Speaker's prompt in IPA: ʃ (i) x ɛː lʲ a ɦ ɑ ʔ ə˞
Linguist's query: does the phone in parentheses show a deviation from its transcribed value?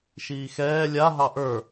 yes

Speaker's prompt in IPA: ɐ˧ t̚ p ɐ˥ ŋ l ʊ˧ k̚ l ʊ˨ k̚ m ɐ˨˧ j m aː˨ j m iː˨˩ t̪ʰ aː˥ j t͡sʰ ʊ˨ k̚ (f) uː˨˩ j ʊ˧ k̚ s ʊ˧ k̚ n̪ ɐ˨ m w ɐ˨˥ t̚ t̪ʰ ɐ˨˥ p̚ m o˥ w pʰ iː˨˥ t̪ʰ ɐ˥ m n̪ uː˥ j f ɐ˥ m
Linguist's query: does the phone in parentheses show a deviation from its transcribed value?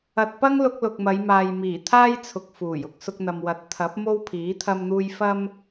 no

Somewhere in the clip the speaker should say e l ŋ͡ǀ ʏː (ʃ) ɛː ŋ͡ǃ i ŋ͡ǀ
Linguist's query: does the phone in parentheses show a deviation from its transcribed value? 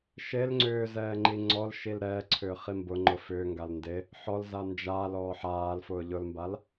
yes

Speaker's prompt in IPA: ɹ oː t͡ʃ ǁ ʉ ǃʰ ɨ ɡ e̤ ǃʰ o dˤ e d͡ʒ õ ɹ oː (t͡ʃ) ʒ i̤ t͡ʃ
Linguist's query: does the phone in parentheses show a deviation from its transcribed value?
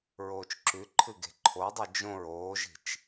yes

